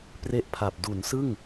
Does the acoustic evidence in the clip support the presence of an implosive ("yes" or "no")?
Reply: no